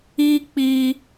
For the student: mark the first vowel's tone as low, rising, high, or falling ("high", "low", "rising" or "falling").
high